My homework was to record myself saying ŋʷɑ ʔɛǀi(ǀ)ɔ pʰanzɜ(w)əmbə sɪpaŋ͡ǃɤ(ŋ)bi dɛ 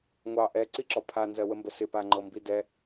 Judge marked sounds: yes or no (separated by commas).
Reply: no, yes, no